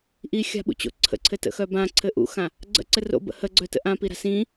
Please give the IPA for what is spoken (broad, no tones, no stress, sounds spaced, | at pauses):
ʔ i xʲ a̤ ɓ ṵ t͡ɕ o̰ ǀʰ ə̰ ǀʰ ɘ t ə̰ x œ b ã ǀʰ ɘ ʔ ṵ x ã | ɡ͡ǀ ə̰ ǀ ɘ r o̰ b ə̰ h ə ɡ͡ǀ œ t ə̰ ʔ ã p i ɾ a̤ s ĩ